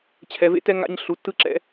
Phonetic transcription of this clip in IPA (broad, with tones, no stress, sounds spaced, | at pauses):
t͡ɕʰ ɛ˨ v ḛ˦ t ɛ˦ ŋ a̰˦ ɲ ɬ u˨ tː ɯ˦ ǁ ɛ̰˦